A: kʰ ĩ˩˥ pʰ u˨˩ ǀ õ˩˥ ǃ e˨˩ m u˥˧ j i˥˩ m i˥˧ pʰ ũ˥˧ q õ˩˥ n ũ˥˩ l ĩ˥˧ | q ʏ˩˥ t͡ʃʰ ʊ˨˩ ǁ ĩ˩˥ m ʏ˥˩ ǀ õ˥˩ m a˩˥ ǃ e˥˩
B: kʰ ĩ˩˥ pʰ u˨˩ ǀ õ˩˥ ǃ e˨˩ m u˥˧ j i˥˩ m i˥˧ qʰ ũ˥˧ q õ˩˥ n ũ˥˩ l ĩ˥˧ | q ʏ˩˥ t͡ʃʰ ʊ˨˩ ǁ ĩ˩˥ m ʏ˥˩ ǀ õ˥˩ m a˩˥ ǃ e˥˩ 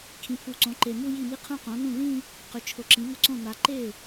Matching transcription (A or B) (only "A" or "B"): B